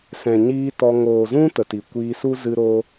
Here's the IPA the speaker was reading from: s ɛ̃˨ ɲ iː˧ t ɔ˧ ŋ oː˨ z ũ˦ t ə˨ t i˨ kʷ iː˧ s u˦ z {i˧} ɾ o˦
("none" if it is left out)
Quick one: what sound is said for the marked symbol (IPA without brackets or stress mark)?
ɨ˧